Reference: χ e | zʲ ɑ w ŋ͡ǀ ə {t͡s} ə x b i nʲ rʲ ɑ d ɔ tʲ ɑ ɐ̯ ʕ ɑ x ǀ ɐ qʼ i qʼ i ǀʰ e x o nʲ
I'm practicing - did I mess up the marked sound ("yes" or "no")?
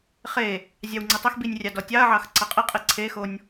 yes